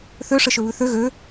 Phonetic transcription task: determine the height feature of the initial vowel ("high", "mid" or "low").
mid